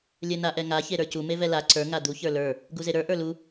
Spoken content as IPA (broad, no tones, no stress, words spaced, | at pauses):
lʲɛnaʔɛŋa çeɾə˞cu mevɛla ǀə˞ ŋad̪u çə˞lə˞ | ɡuzeɾə˞ ʔə˞lu